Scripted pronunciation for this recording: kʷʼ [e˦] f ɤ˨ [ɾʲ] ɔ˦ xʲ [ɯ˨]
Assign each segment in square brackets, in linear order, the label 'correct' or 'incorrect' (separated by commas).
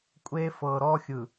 correct, incorrect, correct